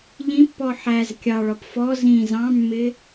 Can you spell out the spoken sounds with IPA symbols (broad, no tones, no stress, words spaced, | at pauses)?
ʎĩpːɔ ħæz kʲɑɭɒp fɔ zĩ zɑ̃mːɪ